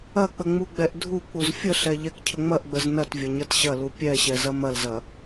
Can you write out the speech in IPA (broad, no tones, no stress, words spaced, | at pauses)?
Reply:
ɐk͡pə ŋ͡muɡ͡bɛʔdʱuk͡puz fʲəɬɛ ʎɛkcʰəŋ͡mɐʔɡ͡bəz nɐtvʲɐ ɲɐtɕɐlu pʲɛɕɛ zɐmɐlzɐ